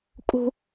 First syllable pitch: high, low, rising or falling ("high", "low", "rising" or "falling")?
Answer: high